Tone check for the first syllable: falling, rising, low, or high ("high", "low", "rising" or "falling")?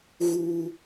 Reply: high